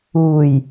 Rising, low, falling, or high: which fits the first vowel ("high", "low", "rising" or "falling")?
low